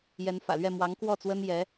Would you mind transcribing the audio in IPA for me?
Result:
j ɛ˧˥ n f ä̰˨˩ l ɥ ɛ˥˩ m w ɑ˧˥ ŋ k w ɔ˥˩ t͡s w ə˥ n j ɛ˧˥

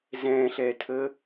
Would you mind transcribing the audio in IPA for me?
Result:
z ɛ̃ ɬ ɛ tʰ ə

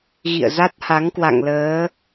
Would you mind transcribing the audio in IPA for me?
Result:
ɣ ḭ˧˨ ə̯ z a˦˥ t̚ h a˨˦ ŋ k w a̰˧˨ ŋ l əː˨˦

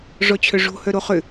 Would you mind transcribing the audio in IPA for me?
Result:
ʐ ɔ t͡ɕʰ œ ʐ o̤ h œ ɾ o χ ʏ

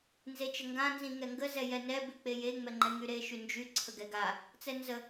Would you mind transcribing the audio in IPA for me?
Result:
n z e t͡ʃ ə ŋ ɡ ã n z ĩ ŋ ɛ ŋ ɡ ə z ɛ j ɛ n ɛ b ʉ k͡p e j e ŋ͡m ɛ ŋ͡ǃ ɛ ŋ y ɾ e ʃ y n d͡ʒ y ǀʰ ə ɡ ɛ ɡ a | t͡s ɛ n z ə

